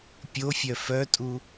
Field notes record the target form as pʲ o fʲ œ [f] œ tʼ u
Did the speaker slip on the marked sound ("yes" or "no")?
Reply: no